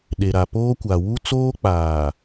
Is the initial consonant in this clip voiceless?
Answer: no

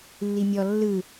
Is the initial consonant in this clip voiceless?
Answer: no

